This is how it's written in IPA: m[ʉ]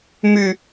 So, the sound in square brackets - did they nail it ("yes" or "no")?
yes